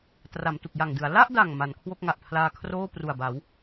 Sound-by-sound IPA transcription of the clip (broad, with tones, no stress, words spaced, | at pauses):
tra˩˦mtu˨˩k̚ja˨˩ŋdɯ˩˦a̯ la˥˩ʔda˨˩ŋ ma˩˦nkʰwo˥˩k̚ŋa˨˩ʔ pʰlaː˧kʰroː˥˩pru˨˩a̯ ba˩˦w